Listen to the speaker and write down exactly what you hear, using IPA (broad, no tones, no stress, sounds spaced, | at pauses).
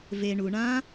v e ɳ u ɳ ã